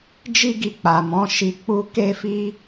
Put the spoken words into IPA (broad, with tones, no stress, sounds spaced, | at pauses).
d͡ʒ i˦ ɡ i˧ k͡p a˨ m ɔ̃˨˦ ʃ i˧ k͡p u˦ k e˦ f i˦